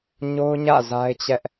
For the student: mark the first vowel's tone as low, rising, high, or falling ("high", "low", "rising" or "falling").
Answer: high